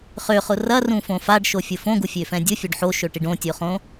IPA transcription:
χøχʊ rɐrũfõ faɖʃofʲʊ fõɡufʲøfɛ̃ dʲʊfʲoɖ ħoʃøʈiɖ õtʲoχõ

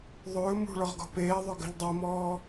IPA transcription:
ðˤɵː mṳɭɔʁ ɡɔ̤peːðˤɵ ɡə̤ʎdˤɛmɔː

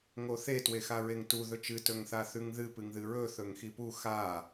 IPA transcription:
ŋoθe twexaɹeŋtu ðɵt͡ʃɨ tɵŋθaθʉŋðɨ pɨŋðɨɹɵ θɵŋxipu xa

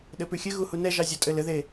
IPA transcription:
ɗɘpʉxʲɘɣu hunɛʒɑ zʲɔtʼɘlɘðe

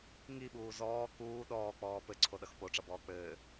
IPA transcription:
ŋiɓuː zɔː kuː ɗɔːk͡pɔː pɘǀʰoɗʌx poʈ͡ʂʌbɔː k͡pɘː

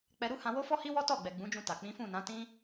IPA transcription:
k͡pɛ˧ɾu˦ hã˧wo˦fɔ˦hi˦ wɔ˦tɔ˦˨ɡ͡bɛ˨ ɡ͡bũ˨˦d͡ʒũ˧ta˨ k͡pĩ˨˦fũ˦˨nã˨˦ tĩ˦

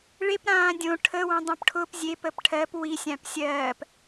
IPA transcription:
ɭep ɾãːdʲõ ʈʰə wə̃dˤõpʈʰʊp zʲep əpʈʰɜp wisʲãp sʲɜːp

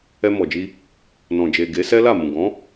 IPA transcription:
ɛ˧mɔ˨d͡ʒi˧ | nɔ̃˨d͡ʒe˨ ɡe˨˦sɛ˦la˦˨ mũ˨ ɡɔ̃˨˦

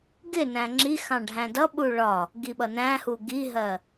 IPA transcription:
ɡɪ næ̃ŋ͡ǁixɑ̃ ɖʱæ̃dʌɓu ɭɒ | ɡiɓʌnæ̃hu ɡiɦɜ

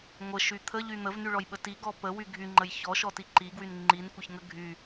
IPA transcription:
ŋʷəʃy t̪ʰəʎy n̪əvnyɭɔjɓə tiɡɔ pəwy ɡʱyŋ͡ǃəj çɔʃɔti ǃiɡwyn ŋ͡ǃinkʷəçŋə ɡʱy

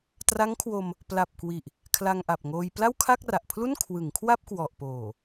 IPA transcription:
tra˦˥ŋkʰwo˧m | pla˨˩p̚ kwi˨˩ʔ | kʰla˧ŋʔa˨˩p̚ŋoː˧j pla˥˩wkʰa˥˩k̚ra˨˩ʔpʰlu˥˩n kʰwɯ˩˦ŋkʰwa˥˩p̚kwɔ˨˩ʔpoː˨˩

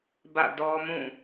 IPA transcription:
bä̰˦˨dɔ˦mũ˦˨

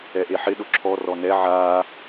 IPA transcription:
ɛʔeħɪ ɗʊǁʰɔ rɔnɛ ʕaː

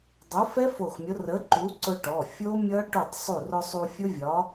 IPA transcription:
dˤʊ˨˥fɛ˦˥ fo˧˩xmʲʊ˨˥ rə˨˥ǃu˨˥ǀʊ˧ ʈɔ˩˧˩ fʲo˦˥mʲʌ˦˥ ʈu˧˩tˤsˤu˧˩rʊ˧ sˤu˧fʲʊ˦˥vʲɒ˨˥

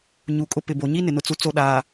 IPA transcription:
ɲu˨kʼʊ˦ pɪ˨bo˨ ɲi˦nɪ˨nʊ˨t͡su˨ t͡so˦ɗaː˨

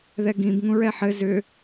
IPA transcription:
ðɛɡĩb ŋũɹɛħɘ zʏ

